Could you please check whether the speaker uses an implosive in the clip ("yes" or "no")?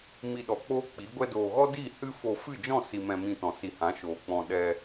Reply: yes